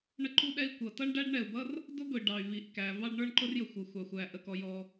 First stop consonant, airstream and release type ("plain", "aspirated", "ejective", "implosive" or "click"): click